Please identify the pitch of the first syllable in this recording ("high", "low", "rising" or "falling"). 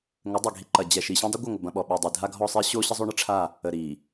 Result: rising